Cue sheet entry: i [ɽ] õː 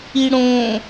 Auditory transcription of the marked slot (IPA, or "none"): ɽ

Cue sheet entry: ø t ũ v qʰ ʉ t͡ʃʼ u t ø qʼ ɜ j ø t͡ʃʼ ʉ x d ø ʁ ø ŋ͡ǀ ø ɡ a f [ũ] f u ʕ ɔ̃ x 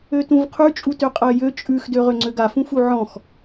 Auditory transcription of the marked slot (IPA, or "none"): ũ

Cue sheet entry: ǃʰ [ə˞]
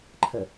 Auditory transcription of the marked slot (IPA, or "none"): ə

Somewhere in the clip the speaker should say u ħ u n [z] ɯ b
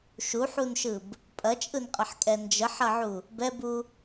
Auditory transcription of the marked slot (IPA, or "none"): ʃ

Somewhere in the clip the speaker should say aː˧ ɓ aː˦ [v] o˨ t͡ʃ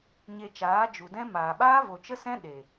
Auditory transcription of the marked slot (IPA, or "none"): v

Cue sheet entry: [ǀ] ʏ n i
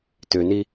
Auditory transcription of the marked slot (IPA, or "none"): t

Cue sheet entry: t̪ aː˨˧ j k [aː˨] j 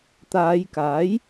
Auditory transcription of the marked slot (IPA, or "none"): aː˨˥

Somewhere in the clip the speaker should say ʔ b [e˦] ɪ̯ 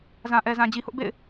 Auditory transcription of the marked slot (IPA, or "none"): ḛ˦˨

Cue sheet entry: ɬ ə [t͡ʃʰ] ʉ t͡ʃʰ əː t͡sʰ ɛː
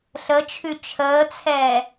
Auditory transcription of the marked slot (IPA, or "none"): t͡ʃʰ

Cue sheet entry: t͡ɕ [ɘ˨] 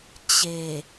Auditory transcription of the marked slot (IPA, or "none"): e˨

